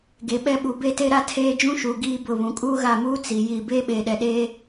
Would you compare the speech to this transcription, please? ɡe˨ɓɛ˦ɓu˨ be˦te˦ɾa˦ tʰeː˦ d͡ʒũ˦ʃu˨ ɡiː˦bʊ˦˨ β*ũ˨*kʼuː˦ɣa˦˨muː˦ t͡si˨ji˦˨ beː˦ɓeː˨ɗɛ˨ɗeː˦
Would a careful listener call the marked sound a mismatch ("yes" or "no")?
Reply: no